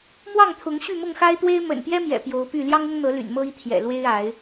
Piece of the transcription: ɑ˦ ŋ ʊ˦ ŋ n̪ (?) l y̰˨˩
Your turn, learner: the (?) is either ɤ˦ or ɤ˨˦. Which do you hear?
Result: ɤ˨˦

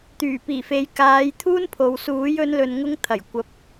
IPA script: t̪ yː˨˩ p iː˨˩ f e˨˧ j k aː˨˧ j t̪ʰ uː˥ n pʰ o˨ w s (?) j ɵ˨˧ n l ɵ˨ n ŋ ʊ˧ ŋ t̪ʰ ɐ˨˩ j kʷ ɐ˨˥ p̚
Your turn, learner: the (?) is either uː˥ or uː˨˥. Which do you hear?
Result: uː˨˥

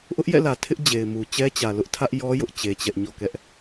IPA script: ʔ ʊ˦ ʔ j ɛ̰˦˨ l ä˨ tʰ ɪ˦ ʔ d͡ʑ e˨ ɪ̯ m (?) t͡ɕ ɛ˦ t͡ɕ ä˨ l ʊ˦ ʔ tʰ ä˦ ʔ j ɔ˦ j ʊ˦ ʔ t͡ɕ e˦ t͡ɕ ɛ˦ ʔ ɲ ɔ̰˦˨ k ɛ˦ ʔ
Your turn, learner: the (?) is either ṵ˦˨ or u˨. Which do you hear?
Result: u˨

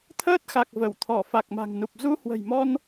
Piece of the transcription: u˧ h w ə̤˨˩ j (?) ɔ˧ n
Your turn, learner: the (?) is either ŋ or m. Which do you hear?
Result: m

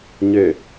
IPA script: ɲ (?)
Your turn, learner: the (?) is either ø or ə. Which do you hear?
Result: ø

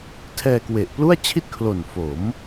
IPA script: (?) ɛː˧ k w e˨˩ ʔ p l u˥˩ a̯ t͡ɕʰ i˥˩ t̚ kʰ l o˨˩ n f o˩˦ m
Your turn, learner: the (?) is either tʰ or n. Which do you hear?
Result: tʰ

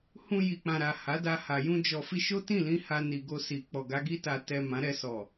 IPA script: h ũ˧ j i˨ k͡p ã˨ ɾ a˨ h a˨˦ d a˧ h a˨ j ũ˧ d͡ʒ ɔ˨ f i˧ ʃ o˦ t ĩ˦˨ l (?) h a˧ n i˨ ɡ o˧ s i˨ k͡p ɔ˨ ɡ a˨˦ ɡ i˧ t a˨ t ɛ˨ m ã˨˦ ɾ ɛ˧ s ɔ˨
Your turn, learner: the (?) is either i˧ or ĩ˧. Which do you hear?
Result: ĩ˧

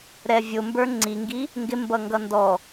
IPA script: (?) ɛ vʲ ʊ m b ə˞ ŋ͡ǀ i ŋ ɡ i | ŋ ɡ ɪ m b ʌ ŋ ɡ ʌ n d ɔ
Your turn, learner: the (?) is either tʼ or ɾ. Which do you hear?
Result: ɾ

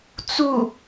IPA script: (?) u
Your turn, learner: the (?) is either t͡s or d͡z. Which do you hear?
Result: t͡s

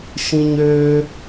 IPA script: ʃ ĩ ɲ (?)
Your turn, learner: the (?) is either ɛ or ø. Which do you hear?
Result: ø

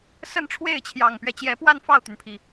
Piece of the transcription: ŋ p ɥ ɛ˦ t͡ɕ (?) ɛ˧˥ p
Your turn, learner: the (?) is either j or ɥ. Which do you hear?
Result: j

